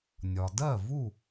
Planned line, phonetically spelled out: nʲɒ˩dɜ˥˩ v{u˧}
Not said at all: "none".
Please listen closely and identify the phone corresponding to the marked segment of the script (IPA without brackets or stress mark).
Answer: u˥˩